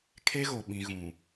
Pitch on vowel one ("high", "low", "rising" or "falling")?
high